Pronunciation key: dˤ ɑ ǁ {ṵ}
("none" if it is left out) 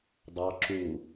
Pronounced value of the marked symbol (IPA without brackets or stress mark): u